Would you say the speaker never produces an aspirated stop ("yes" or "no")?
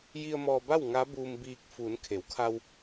no